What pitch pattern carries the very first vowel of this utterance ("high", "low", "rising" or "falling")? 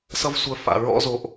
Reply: high